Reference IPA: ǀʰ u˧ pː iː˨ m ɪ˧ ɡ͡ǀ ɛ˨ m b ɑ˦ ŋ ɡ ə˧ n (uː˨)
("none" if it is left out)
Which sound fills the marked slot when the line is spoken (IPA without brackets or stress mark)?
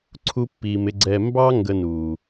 uː˨